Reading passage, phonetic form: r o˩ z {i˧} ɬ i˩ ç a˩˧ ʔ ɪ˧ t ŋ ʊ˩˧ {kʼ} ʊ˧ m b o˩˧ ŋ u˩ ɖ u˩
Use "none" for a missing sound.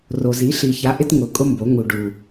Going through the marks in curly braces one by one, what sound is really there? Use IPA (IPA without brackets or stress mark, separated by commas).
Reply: i˩˧, kʼ